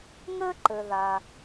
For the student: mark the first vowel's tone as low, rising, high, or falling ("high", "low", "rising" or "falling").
high